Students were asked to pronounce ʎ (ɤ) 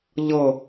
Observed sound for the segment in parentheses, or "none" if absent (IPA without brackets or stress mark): ɤ